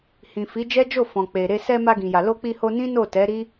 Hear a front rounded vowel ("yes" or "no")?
no